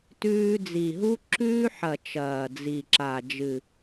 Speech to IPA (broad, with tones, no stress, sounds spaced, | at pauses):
t ʉː˦ d͡z i˨˩ ɦ u˦ ǁ ʉː˦ ħ ɐ˨˩ t͡ʃ ɐː˨˩ d͡z i˨˩ ǁ a˨˩ d͡ʒ ɨ˨˩